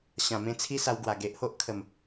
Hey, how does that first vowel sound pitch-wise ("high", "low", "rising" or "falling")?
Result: low